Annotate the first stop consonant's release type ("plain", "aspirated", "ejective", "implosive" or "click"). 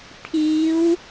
aspirated